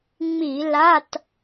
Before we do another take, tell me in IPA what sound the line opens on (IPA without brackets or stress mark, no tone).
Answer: ŋ͡m